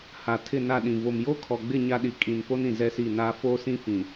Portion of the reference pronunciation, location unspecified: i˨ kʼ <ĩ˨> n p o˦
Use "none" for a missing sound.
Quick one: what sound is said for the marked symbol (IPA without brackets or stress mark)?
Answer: ĩ˨